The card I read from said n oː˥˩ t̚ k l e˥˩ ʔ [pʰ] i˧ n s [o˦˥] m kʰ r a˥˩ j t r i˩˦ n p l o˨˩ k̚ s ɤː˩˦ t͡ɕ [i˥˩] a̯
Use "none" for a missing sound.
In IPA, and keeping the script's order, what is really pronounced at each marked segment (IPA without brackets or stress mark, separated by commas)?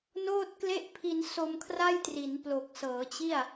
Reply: pʰ, o˧, i˥˩